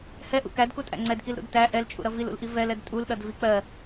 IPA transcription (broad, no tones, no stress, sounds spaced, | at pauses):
h ɛ ʔ ṵ k æ d k u tʼ æ̰ ŋ͡ǀ ɛ d k i l ɾ ṵ d t æ ʔ ɛ l t͡ʃʼ ṵ ɾ ʌ v i l ṵ l ʔ i v ɛ l ɛ d tʼ u l ɗ ʌ d v i k͡p ɜ